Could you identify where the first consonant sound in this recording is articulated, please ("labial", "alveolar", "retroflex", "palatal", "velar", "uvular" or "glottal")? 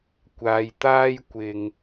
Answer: velar